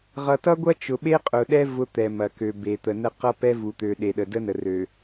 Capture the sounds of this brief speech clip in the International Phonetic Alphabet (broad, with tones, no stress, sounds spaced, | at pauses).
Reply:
ʁ ʌ˨ t ʌ˦ ɡʷ ɐ˦ t͡ʃ ʊ˨ ɓ e˦ qʼ ʊ˨ ɗ ɛ˦ v ʊ˦ t̪ ɛ˨ m ɐ˨ k ø˨ b e˨ t̪ ə˨ n ə˦ q ʌ˦ p ɛ˦ v u˨ t̪ ø˨ ɗ e˨ ɗ ə˨ d ə˦ n ə˨ r ø˨